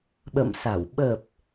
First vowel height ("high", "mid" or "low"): mid